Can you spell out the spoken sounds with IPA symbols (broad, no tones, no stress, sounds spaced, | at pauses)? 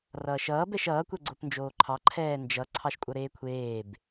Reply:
r ʌː ʃ ʌː b ɛ ʃ ʌː kʷ ɛ ɡ͡ǀ o p n d͡ʒ oː ǃʰ ɑ ǃʰ ɛː n d͡ʒ ʌ ǀʰ ɑ ʃ kʷʼ ʌ ɾ eː kʷʰ eː b